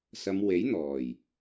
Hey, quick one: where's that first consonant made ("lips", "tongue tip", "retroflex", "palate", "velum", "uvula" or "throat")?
tongue tip